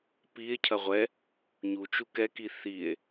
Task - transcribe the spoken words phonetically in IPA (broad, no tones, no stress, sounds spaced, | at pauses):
p i e̯ cʰ ɐ ʁʷ ɛ | ɲ u t͡ʃ u k ɛ k i θ i e̯